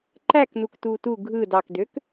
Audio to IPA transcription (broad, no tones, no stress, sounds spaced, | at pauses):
ǃ æ k n u k t uː t u ɡʱ ɯ d ɑ k d ø k